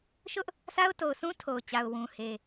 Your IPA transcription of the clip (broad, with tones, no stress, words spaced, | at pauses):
ʃʊ˦ʔ | sa˦ʊ̯to˨ʊ̯sʰũ˦ tʰo˨ʊ̯t͡ɕa˨ʊ̯ wũ˨he˨